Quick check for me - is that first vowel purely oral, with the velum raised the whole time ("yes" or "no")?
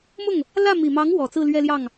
yes